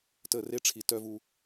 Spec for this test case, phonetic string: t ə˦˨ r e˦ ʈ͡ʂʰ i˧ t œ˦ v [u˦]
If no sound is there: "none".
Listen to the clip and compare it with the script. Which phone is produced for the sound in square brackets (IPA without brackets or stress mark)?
u˦